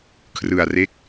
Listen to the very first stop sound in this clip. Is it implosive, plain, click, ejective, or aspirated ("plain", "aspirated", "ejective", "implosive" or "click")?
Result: aspirated